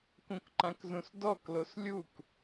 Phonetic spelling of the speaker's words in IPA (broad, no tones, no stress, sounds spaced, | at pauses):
k ũ k ǃ ã k z ũ s d ɔ k l o s lʲ u k